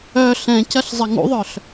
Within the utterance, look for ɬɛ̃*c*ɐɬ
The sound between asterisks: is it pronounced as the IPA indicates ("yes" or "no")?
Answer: yes